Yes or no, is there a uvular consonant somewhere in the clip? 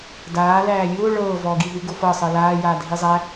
no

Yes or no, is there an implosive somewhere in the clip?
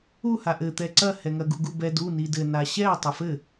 no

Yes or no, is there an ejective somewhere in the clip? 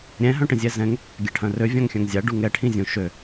no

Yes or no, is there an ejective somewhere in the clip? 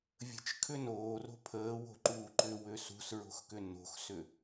no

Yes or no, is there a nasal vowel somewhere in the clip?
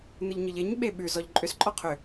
no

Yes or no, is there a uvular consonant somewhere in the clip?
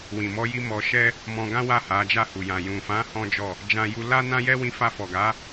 no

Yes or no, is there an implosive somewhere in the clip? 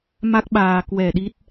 yes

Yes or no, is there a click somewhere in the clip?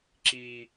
yes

